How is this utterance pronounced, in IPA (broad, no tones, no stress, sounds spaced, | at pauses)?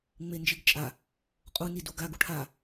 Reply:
ŋ͡m e n d͡ʒ i ɡ t͡ʃʼ a | qʼ u n i d u ɡ a ɡ u ʈʰ a